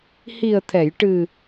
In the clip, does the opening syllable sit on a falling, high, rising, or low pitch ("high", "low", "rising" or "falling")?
low